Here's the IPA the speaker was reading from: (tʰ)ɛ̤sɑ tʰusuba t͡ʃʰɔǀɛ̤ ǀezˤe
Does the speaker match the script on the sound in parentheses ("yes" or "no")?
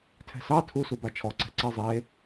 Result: yes